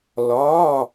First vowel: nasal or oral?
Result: oral